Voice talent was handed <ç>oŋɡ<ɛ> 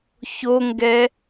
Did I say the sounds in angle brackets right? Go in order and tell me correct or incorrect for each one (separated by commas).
correct, correct